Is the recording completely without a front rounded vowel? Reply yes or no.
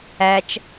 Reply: yes